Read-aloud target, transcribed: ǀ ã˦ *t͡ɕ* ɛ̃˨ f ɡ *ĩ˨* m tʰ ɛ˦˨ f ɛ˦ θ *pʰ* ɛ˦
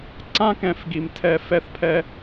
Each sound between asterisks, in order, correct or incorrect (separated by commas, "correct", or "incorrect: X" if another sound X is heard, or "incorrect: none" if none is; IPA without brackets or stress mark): incorrect: k, incorrect: i˨, correct